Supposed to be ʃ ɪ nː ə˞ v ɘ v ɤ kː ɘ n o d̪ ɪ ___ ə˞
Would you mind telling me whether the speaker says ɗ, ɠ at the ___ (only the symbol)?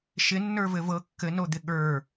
ɠ